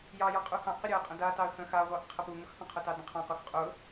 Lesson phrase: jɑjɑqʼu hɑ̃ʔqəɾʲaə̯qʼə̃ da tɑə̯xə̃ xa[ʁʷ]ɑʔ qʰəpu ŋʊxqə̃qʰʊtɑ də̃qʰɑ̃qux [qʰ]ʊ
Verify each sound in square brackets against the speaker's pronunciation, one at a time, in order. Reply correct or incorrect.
correct, incorrect: qʼ

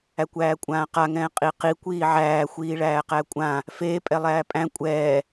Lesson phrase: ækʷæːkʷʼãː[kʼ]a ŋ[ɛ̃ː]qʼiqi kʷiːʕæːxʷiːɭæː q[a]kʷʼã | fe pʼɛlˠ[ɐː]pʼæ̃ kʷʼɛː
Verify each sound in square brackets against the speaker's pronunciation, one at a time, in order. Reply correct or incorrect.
incorrect: q, correct, incorrect: æ, incorrect: æː

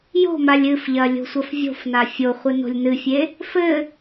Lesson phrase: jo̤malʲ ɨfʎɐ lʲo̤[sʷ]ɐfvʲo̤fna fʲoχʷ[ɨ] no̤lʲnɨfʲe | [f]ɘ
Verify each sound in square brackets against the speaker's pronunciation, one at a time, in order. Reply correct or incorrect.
correct, correct, correct

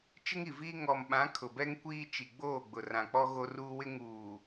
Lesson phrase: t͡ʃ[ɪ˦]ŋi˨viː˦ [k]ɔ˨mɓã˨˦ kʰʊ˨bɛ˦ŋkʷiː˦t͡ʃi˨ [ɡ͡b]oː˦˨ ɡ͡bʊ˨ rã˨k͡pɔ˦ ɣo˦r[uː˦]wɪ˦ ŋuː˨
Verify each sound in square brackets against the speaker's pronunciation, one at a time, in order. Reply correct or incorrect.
correct, incorrect: ŋ, correct, correct

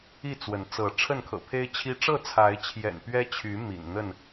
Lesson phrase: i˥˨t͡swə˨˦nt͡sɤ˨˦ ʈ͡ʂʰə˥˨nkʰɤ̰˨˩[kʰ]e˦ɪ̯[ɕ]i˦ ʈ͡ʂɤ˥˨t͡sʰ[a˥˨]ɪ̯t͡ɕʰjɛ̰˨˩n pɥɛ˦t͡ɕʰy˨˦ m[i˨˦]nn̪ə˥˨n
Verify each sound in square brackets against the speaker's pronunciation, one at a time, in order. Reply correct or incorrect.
incorrect: pʰ, incorrect: t͡ɕʰ, incorrect: a˨˦, incorrect: ḭ˨˩

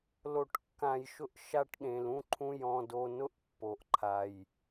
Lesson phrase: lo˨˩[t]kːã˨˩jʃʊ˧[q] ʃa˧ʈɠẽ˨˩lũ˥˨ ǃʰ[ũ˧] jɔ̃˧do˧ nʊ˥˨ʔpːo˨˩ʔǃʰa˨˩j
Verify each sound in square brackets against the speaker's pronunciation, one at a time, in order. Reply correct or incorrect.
incorrect: ʈ, incorrect: ʔ, correct

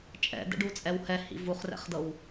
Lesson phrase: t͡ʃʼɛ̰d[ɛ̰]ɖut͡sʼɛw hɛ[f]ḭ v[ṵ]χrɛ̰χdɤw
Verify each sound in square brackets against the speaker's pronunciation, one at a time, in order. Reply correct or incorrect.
correct, incorrect: h, incorrect: u

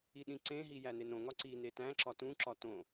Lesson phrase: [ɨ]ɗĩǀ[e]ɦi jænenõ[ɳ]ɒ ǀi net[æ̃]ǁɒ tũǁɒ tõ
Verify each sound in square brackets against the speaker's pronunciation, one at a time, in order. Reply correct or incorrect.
incorrect: i, incorrect: ẽ, incorrect: ŋ, correct

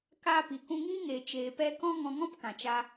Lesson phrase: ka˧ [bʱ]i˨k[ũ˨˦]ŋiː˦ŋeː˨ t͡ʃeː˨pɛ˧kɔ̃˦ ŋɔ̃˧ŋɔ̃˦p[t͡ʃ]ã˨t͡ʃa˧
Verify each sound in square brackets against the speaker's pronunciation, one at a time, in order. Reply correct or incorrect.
incorrect: p, incorrect: ũ˧, incorrect: k

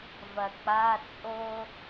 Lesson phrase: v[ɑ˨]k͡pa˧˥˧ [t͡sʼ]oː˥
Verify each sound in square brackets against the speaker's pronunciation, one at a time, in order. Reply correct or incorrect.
incorrect: ɐ˨, correct

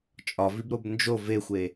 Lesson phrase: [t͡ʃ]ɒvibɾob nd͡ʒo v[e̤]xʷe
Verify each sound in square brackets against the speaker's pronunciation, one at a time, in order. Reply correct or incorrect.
incorrect: t͡ʃʼ, incorrect: e

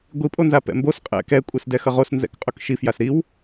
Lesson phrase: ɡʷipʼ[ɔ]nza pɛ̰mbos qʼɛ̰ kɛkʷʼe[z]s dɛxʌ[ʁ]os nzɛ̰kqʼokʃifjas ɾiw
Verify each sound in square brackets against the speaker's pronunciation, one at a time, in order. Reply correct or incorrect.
incorrect: o, incorrect: none, correct

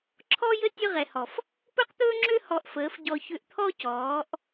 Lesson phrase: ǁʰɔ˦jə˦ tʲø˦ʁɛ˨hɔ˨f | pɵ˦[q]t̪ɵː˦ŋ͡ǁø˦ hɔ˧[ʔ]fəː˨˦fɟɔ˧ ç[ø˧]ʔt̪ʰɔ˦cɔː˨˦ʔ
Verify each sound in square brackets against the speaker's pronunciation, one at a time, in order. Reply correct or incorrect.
correct, correct, correct

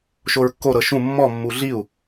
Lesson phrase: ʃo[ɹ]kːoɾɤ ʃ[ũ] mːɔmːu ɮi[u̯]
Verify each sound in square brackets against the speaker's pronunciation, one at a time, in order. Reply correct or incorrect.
correct, correct, correct

